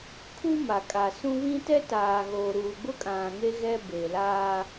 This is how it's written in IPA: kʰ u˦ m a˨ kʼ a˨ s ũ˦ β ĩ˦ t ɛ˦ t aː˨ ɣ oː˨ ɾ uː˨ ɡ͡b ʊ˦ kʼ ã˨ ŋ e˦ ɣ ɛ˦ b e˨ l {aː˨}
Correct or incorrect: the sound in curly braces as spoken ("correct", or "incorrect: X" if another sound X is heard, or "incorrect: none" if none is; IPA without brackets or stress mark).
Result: incorrect: aː˦